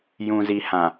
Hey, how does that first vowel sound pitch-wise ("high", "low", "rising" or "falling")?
low